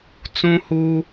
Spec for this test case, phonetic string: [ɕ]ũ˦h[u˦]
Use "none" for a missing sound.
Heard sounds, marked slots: t͡s, uː˦

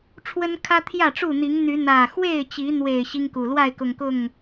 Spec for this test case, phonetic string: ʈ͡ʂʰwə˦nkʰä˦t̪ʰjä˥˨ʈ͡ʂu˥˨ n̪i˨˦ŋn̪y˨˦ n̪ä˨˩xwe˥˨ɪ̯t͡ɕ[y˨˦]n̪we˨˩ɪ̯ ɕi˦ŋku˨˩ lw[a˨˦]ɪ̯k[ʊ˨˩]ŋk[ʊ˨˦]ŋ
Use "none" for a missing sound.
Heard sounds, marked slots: i˨˦, a˥˨, ʊ˨˩, ʊ˥˨

